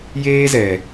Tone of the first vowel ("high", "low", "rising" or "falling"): high